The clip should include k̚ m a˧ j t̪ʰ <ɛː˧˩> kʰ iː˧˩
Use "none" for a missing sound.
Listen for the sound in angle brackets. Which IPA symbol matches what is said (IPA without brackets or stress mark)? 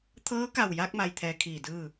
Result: ɛː˧